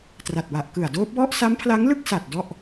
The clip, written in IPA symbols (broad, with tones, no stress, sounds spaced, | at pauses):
t r a˨˩ t̚ w a˨˩ ʔ k ɯ˨˩ a̯ d oː˦˥ p̚ w ɔ˥˩ ʔ s a˦˥ m pʰ l a˦˥ ŋ l ɯ˥˩ k̚ s a˨˩ t̚ d ɔ˥˩ ʔ